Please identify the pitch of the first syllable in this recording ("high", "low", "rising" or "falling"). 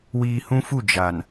low